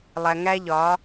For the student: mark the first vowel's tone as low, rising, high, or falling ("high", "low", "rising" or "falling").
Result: low